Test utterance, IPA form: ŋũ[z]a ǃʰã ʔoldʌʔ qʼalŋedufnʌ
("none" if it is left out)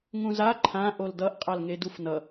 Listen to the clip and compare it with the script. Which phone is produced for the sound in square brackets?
z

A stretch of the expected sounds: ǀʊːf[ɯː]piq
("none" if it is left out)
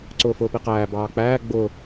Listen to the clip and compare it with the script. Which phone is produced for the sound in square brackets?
ʊː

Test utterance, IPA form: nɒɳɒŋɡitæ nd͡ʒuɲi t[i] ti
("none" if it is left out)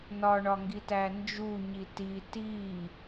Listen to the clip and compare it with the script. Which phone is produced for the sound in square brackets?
i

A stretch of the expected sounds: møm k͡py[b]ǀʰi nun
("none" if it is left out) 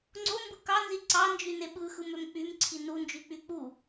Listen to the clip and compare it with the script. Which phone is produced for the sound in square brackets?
m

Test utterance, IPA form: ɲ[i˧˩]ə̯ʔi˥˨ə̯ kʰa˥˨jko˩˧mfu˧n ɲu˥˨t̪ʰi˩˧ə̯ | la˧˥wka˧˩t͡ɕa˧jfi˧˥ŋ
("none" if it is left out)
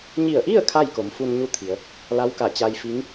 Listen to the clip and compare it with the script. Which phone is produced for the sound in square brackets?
i˧˩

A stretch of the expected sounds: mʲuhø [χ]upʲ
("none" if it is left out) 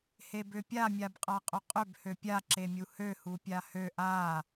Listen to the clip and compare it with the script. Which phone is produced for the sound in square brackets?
h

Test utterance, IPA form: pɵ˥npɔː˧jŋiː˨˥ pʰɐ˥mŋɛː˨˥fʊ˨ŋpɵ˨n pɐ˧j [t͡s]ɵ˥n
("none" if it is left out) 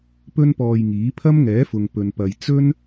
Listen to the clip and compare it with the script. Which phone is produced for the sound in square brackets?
t͡s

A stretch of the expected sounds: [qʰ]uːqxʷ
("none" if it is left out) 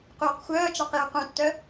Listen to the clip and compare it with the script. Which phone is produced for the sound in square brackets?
q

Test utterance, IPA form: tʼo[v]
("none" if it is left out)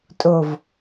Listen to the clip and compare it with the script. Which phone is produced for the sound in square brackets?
v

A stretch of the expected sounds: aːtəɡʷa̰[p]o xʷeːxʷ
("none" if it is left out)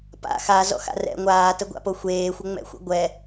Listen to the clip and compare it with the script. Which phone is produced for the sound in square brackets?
p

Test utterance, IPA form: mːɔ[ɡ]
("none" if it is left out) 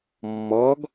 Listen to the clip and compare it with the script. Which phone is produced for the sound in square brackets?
ɡ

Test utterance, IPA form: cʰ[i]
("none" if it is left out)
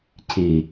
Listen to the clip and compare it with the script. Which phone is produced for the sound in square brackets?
i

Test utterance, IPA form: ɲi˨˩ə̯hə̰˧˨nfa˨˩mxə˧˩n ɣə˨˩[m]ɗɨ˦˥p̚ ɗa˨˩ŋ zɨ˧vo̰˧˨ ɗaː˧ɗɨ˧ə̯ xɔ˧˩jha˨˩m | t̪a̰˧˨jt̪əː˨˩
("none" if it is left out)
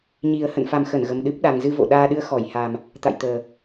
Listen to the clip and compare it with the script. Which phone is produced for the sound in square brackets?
m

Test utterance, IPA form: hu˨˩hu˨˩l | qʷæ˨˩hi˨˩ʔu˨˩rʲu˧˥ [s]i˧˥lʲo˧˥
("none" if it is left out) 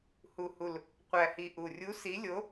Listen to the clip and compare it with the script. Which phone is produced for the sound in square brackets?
s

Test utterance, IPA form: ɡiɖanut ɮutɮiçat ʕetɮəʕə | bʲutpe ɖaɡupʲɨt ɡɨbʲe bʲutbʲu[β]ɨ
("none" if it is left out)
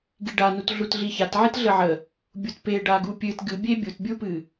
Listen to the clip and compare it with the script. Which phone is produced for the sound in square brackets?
p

